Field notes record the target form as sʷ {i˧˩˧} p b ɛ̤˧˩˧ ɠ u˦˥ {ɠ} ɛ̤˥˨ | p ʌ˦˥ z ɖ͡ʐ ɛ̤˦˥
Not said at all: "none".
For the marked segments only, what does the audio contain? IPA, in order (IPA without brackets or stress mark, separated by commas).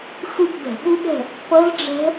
i˥˨, ɠ